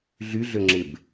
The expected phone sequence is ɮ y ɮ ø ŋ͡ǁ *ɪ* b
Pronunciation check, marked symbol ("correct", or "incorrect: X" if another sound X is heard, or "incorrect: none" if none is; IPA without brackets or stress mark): correct